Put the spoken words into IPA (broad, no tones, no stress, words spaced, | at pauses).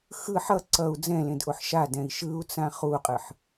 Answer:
xɯ ħʌ ǀʌu̯ d͡zɛ̃lẽdʔoħ ʃadɛ̃i̯ ʃɯu̯t͡sã χuqʼɯħ